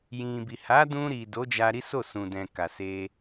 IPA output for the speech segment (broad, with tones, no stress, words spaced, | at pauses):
jĩ˨bi˨ ha˨˦dũ˧ɾi˨ do˨˦d͡ʒa˧ ɾi˦so˦˨sũ˨dɛ̃˨ ka˨se˧